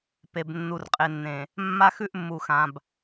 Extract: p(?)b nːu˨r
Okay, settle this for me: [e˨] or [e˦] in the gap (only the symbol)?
e˨